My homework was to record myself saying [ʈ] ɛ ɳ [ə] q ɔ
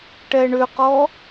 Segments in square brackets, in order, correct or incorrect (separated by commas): correct, incorrect